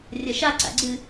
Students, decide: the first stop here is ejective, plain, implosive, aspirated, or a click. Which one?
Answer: click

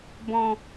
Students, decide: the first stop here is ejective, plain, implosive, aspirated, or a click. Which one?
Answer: plain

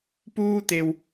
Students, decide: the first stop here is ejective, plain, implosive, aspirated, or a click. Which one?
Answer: plain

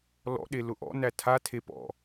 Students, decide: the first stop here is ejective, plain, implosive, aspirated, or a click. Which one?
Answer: implosive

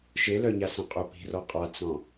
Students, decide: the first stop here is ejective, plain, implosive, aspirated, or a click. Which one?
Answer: ejective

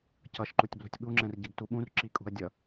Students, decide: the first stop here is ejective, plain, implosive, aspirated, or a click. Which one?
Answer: plain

